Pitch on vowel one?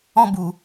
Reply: high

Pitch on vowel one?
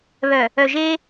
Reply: low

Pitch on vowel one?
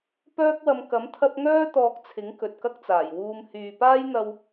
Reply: high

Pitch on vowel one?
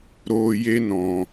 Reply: high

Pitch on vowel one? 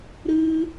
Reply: high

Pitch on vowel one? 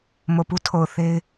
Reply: low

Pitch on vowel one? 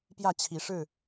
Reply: falling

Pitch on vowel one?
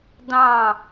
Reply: falling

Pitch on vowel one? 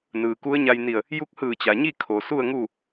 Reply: low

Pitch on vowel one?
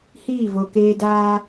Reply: falling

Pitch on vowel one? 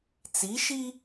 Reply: rising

